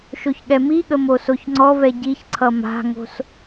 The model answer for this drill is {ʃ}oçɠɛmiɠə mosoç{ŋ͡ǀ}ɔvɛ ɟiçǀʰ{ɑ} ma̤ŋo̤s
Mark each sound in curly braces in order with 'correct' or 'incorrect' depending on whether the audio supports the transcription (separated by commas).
correct, correct, incorrect